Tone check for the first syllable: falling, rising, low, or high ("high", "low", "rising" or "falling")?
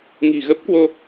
low